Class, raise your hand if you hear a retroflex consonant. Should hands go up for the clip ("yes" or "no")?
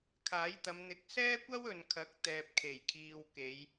no